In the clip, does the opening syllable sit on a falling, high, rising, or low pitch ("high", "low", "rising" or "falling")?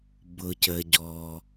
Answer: low